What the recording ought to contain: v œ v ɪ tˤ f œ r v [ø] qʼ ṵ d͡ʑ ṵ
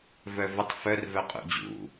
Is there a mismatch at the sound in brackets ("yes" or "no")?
yes